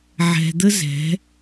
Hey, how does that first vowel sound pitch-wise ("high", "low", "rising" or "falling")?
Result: low